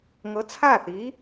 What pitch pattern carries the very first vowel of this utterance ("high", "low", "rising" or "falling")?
rising